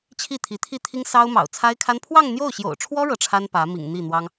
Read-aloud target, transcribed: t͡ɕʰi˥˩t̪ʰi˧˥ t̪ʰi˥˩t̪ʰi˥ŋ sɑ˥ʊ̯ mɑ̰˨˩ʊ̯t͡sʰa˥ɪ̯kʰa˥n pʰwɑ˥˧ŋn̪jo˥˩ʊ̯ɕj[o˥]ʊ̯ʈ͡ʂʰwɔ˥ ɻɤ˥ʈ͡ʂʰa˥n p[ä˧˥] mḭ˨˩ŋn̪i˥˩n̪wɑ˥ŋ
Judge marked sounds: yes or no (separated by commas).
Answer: no, yes